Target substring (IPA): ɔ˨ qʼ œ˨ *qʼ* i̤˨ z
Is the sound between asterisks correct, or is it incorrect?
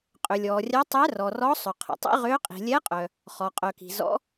incorrect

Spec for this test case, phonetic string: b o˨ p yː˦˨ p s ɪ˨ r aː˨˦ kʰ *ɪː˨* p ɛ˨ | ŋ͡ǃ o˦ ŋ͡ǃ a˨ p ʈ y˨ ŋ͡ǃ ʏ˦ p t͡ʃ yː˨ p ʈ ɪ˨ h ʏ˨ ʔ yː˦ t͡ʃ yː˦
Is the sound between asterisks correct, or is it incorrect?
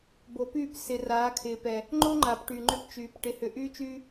correct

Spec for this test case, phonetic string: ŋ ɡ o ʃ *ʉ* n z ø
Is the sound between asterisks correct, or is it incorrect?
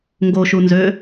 incorrect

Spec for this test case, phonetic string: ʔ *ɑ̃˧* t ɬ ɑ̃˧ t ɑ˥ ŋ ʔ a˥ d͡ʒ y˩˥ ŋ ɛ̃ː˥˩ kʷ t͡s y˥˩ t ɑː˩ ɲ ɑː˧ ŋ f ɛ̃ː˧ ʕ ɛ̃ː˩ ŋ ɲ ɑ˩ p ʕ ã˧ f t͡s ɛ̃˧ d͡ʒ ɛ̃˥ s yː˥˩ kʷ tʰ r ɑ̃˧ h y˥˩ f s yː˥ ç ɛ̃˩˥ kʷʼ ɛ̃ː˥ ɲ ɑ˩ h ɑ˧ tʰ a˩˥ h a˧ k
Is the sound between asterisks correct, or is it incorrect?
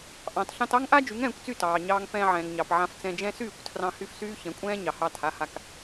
incorrect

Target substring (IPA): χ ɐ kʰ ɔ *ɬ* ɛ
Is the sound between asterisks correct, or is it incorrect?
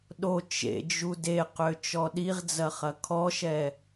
incorrect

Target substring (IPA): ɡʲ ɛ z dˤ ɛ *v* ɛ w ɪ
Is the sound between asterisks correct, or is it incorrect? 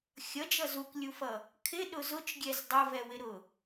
correct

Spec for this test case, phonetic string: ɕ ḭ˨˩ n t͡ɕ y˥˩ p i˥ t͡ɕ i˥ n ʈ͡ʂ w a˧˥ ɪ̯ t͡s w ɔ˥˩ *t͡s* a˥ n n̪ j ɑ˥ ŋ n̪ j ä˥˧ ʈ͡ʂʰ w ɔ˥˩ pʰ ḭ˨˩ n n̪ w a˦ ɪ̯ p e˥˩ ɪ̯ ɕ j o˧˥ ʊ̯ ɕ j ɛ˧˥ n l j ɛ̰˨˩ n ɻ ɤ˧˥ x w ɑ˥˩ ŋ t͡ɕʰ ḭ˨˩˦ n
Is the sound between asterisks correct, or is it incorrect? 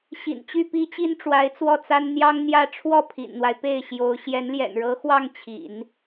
correct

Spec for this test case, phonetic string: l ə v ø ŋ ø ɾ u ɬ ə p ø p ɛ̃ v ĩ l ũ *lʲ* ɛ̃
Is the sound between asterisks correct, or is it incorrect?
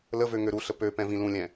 correct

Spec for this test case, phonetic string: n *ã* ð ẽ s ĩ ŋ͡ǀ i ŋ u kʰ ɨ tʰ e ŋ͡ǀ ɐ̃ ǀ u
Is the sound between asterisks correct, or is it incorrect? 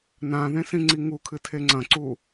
correct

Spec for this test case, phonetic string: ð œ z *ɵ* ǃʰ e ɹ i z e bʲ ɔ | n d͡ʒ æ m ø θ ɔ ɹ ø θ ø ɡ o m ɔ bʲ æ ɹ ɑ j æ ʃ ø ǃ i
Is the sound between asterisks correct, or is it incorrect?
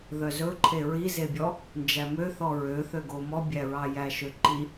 correct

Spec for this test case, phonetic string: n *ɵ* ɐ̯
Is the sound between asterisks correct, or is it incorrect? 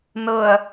incorrect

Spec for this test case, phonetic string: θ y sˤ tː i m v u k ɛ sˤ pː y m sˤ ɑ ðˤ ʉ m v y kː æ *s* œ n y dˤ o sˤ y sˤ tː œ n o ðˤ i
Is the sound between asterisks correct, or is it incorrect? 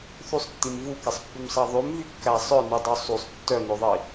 incorrect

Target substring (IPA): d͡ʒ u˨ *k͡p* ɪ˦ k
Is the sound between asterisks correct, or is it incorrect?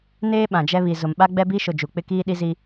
correct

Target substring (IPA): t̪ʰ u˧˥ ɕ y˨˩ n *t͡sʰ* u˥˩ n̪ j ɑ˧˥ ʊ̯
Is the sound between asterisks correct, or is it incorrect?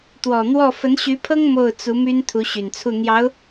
correct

